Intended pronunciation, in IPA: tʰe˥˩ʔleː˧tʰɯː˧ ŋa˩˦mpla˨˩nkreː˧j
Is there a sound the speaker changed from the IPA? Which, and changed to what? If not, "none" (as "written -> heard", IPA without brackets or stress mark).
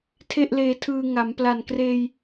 none